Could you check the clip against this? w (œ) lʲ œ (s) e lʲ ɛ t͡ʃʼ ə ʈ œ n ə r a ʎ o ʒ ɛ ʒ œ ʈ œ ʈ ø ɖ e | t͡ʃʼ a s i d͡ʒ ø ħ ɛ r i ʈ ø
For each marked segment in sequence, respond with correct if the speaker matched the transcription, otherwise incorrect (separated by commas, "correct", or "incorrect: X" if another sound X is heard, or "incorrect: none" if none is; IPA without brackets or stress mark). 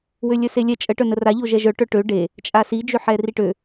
incorrect: ø, correct